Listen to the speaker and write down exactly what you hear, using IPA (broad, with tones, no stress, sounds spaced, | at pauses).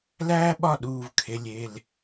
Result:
l æː˥ ɓ ɒ˥˩ ɗ uː˧˩ v kʰ e˩˧˩ lʲ e˧˩ l